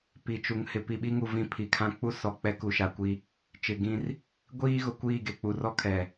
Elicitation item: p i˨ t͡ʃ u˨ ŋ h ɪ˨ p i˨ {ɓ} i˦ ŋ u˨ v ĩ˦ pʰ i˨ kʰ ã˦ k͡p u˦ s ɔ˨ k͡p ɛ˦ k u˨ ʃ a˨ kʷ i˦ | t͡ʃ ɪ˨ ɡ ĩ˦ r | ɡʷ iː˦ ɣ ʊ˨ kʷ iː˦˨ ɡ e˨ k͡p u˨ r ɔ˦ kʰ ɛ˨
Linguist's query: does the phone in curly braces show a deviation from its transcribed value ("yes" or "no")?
no